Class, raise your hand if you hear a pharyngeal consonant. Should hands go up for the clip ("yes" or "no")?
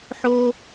yes